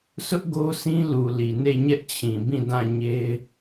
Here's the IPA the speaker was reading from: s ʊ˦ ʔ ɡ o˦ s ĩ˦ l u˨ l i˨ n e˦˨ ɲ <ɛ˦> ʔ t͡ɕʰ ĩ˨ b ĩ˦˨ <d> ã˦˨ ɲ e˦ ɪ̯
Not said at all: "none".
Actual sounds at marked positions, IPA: ɛ˦, d

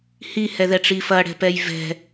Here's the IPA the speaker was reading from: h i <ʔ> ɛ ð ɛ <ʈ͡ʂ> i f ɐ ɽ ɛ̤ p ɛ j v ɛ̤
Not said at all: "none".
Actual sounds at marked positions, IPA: h, ʈ͡ʂ

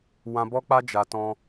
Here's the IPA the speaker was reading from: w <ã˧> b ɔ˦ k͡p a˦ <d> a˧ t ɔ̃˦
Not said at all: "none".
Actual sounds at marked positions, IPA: ã˧, d͡ʒ

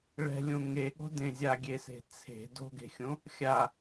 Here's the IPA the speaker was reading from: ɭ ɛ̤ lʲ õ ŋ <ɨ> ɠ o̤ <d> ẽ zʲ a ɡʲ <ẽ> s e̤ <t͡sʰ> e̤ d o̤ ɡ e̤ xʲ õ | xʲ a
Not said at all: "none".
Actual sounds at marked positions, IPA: e, d, e, t͡sʰ

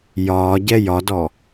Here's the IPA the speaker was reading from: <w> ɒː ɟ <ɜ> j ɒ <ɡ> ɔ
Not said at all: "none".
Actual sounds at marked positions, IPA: j, ɛ, d

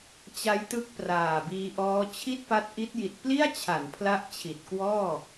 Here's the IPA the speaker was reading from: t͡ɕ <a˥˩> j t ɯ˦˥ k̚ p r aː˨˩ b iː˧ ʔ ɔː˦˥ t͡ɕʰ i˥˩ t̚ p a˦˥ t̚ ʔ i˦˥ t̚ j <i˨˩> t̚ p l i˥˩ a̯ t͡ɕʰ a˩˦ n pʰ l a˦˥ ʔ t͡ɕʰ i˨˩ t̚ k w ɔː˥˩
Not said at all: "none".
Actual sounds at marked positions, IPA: a˦˥, i˨˩

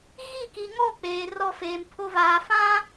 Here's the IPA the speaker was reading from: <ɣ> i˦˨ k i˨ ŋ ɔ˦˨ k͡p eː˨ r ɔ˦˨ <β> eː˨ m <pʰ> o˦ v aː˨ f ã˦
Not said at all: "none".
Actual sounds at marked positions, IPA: ɣ, f, pʰ

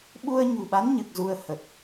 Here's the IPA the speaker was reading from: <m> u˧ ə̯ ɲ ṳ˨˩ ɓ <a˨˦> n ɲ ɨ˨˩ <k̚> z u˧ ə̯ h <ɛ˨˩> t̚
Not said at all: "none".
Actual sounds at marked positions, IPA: ɓ, a˨˦, k̚, ə˨˩

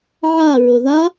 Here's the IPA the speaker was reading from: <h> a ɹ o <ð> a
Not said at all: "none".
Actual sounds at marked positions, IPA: ʕ, ð

